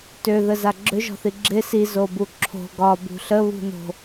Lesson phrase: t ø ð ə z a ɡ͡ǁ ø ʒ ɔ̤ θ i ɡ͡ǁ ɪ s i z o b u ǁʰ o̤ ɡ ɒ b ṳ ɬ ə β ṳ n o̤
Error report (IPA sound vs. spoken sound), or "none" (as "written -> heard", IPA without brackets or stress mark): none